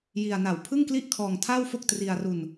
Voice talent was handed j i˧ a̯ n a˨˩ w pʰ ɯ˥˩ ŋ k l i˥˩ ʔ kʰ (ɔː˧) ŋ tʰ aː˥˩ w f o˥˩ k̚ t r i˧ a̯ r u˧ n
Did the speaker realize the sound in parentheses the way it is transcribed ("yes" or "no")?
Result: yes